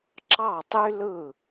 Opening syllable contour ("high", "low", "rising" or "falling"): falling